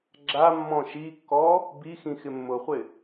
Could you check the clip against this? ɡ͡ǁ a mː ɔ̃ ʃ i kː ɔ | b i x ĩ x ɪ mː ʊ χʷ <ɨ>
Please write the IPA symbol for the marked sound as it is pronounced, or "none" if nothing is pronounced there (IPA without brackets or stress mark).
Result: ɪ